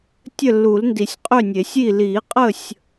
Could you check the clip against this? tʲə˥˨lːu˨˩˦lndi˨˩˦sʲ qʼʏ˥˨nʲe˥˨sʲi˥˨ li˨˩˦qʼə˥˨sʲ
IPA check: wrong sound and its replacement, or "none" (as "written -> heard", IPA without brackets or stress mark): e˥˨ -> e˨˩˦